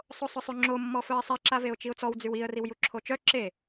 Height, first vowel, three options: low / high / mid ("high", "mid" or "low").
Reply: mid